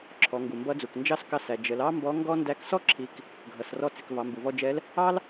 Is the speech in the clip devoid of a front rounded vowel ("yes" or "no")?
yes